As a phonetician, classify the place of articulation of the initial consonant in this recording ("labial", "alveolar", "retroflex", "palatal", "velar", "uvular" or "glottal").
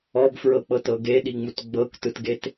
labial